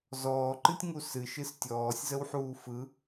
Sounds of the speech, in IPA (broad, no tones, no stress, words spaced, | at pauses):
zɔːǃɨtʲŋu sɨʃɨs tʲɔːsʲzəwħuː fɯ